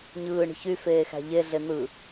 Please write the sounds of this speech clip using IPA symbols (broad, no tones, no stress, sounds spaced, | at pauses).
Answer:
ɲ ɯː ɳ i̤ ç y f eː x æ̤ ʎ e ɮ e n̪ ɯ